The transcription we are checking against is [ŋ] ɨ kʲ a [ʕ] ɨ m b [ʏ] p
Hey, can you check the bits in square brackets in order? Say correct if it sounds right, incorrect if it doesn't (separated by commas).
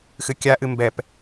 incorrect, incorrect, incorrect